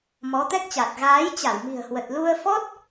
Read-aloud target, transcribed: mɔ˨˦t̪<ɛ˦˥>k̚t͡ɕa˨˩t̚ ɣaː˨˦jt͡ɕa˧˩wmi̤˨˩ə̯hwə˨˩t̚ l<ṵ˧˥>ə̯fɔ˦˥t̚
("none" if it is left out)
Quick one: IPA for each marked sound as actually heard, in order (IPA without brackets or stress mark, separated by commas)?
ɛ˦˥, u˧